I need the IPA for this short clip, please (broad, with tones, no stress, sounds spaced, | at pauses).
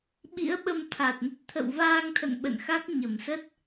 ɓ ḭ˧˥ ə̯ ɓ ə˧ m t̪ʰ a˨˩ t̚ n ə˦˥ t̚ t̪ʰ ə̰˧˨ w v aː˧ ŋ t̪ʰ ə̰˧˨ n ɓ ə̰˧˨ n x a˦˥ k̚ ɲ ə˧˩ m s ə˦˥ t̚